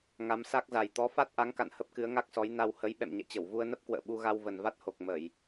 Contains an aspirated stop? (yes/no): no